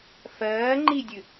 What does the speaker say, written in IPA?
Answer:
f ɜː ŋ͡ǃ i dʲ ɨ

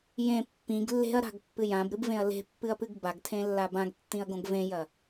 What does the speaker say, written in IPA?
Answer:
j ẽ pː ĩ ɡ lː e̤ ɐ̯ ɾ a̤ ɡ pː ɨ j ã b ɾ ɨ b v ẽ ɐ̯ l e̤ pː ɨ ɐ̯ p ɨ ɡ b a ɡ tʰ ẽ lː a b ã ɡ tː ĩ ɐ̯ ɡ õ ɡ v ẽ j ɐ

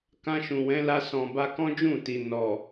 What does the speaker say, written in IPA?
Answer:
k ã˧ ʃ ũ˨ w ɛ̃˨˦ l a˧ s ɔ̃˨ b a˧ k ɔ̃˦ d͡ʒ ũ˦˨ t i˨ n ɔ˨

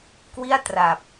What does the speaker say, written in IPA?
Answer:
k w i˥˩ a̯ t r a˨˩ p̚

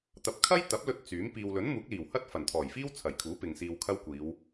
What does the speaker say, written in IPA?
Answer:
t̪ ɐ˨˥ p̚ kʰ ɐ˥ j t̪ ɐ˨˥ p̚ l ɵ˧ t̚ t͡s yː˨˥ m p iː˨ w l ɵ˨˥ n m uː˨˥ k̚ l iː˨˩ w h ɐ˥ t̚ f ɐ˨˩ n t̪ʰ ɔː˨˩ j f iː˥ w t͡sʰ ɐ˨˩ j kʰ uː˨˥ p ɪ˨ ŋ s iː˧ w kʰ ɐ˥ w kʷ iː˨˧ w

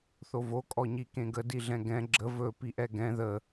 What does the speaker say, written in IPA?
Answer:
θ o v o kʼ ɔ ɲ i k ẽ ɡ ə d i ɮ ɛ̃ ɡ ɛ̃ ɡ͡ǁ ə v ɵ p i ʔ ɛ ɡ ɛ̃ ð ə

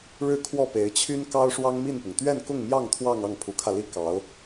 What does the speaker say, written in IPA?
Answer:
ɻ ɻ̩˥˧ kʰ w ɔ˥˩ p e˧˥ ɪ̯ t͡ɕʰ y˥ n k ɑ˥ ʊ̯ ʂ w ɑ˥ ŋ m i˥˩ n p ʊ˩ ŋ t̪ ɥ ɛ˥˧ n k ʊ˥˧ ŋ m j ɑ˥˧ ŋ t̪ʰ w ɑ˥˧ ŋ ɑ˥˩ ŋ pʰ u˧˥ kʰ ä˧ l i˥ k ɑ˧˥ ʊ̯

